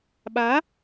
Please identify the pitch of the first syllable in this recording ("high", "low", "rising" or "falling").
rising